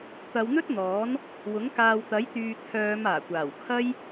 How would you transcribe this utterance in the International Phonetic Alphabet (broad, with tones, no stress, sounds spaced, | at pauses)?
t̪ ɐ˨˧ w n̪ ɵ˥ t̚ n̪ ɔː˨˥ n | w ʊ˨˥ ŋ k aː˨ w t̪ ɐ˨˥ j t̪ yː˨ t̪ʰ œː˨˧ m aː˨˩ kʷ aː˨˩ w kʰ ɐ˥ j